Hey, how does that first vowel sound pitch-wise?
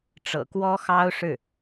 low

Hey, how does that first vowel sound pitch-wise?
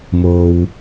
low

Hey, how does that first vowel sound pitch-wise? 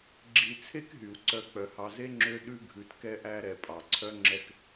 low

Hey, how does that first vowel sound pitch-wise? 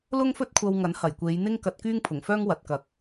high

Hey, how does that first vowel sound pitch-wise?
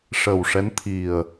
low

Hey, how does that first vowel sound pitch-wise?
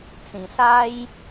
low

